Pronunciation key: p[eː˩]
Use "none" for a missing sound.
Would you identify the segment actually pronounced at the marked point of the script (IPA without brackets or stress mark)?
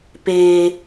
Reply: eː˩